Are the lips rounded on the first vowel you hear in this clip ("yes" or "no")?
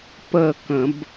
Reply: no